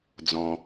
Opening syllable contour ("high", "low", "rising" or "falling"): low